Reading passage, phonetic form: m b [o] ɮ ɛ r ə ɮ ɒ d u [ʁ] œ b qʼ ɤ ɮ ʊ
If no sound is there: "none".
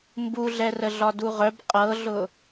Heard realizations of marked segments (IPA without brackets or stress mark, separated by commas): u, ʁ